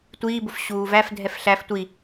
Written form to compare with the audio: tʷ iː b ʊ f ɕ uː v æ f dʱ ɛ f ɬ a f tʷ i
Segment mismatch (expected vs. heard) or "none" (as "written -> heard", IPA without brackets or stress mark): a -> æ